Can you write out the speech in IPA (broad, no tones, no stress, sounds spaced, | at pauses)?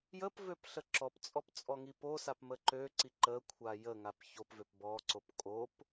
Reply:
j ə p v ø p ɬ ə ǁ ɔ p t͡sʼ ɔ p t͡sʼ ɔ ŋ i p o s a p m ə ǃ ø ǀ i ǃ ə kʷʰ a j ə ŋ a p ç o p v ø p b ɔ ǀ o p kʼ o p